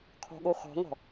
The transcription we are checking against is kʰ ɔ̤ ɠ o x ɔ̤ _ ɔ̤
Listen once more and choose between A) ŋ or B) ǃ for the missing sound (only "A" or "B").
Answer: A